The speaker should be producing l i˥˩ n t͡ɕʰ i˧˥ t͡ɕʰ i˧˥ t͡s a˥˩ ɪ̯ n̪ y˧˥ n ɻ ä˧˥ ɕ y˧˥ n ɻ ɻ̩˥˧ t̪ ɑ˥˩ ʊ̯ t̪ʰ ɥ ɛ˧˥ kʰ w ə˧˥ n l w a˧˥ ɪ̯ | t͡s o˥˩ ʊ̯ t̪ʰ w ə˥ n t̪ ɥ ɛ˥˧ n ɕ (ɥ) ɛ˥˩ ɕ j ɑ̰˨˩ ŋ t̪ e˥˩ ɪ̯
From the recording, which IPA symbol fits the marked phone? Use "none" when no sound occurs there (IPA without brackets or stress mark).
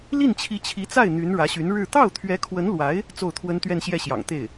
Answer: j